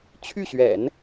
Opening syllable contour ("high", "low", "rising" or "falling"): falling